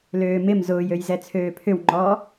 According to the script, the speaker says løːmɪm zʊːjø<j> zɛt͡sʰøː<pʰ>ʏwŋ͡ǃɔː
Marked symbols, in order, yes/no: yes, yes

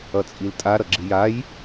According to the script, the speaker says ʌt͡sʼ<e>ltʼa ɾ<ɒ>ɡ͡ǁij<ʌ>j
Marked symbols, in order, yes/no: no, no, no

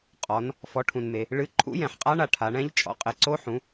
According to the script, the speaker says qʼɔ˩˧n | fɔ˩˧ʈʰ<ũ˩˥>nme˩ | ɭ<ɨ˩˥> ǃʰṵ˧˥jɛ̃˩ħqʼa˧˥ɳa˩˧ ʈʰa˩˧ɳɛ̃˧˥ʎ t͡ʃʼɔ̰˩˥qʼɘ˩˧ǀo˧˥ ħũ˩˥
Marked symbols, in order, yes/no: no, yes

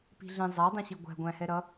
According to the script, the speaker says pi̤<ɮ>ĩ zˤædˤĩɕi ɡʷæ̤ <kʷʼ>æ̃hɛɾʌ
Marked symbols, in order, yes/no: yes, no

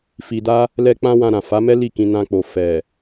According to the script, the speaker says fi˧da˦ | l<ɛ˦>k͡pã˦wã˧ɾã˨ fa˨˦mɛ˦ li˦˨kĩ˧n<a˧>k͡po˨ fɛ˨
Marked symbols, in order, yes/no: yes, no

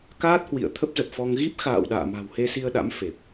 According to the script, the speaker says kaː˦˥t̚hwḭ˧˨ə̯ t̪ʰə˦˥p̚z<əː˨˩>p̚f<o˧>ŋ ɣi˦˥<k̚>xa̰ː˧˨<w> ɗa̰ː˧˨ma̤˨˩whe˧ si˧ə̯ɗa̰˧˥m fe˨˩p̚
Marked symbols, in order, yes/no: no, no, no, yes

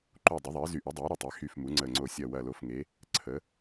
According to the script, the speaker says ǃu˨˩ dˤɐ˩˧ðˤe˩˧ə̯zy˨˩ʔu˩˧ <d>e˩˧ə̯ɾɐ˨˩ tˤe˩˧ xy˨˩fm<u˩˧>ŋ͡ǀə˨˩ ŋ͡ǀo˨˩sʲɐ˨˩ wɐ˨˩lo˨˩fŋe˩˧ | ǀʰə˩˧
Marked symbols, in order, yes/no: no, yes

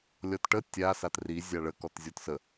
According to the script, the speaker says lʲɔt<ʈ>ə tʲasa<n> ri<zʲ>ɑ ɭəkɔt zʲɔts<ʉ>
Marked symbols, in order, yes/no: yes, no, yes, no

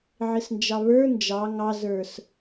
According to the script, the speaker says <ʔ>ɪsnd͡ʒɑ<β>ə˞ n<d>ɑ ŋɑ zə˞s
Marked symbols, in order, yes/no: no, yes, no

